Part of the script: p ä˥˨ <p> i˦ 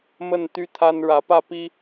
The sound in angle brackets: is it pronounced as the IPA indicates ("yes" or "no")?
yes